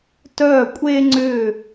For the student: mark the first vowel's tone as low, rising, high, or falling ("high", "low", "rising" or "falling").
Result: falling